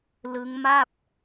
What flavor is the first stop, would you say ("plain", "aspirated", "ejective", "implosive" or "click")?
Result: plain